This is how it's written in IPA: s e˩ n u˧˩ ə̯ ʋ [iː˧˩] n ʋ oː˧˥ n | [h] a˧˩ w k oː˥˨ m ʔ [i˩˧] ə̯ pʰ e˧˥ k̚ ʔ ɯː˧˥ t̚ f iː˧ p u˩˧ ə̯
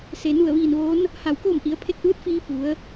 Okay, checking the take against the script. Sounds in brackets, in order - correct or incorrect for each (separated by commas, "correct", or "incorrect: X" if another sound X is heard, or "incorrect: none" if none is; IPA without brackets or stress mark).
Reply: correct, correct, correct